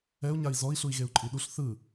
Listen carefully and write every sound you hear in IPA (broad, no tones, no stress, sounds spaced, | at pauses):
ɛ u̯ ɲ a i̯ z ɔ i̯ ɬ u i̯ ɣ e u̯ ǃʼ i ɗ u ɬ θ ɯ